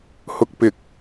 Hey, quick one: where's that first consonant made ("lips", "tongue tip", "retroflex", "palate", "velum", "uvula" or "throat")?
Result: throat